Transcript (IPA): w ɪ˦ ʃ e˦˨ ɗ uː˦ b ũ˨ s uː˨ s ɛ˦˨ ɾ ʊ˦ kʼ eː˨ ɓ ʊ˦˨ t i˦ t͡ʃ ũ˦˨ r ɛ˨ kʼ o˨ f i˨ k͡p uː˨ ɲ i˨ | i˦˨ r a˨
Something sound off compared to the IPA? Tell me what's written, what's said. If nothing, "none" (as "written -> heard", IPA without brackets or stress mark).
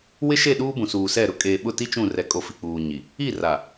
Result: none